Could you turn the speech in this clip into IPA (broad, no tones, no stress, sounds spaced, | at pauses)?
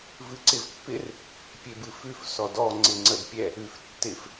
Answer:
v ɨ ǀ ɪ v pː ɪ r | pʲ e b ɨ f ʉ f s ɔ d ɔ ŋ͡ǀ ɪ ŋ͡ǀ ə d pʲ ɛ | ʉ f tː ɪ f